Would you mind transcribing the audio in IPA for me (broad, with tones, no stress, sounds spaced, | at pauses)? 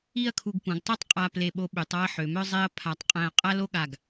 i˥˧ ɐ̯ kʰ u˧ ɡ p ũ˩˧ ɡ tˤ o˥ tˤ qʼ a˧ p l e˧˩ ɓ o˧ ɓ y˩˧ tˤ ɔ˥˧ ɐ̯ ħ ø˩˧ m œ˥ zˤ e˥ ɐ̯ pʰ a˧˩ tˤ qʼ ɛ̃˧ ɐ̯ qʼ a˥ l o˥ ɠ a˧˩ ɡ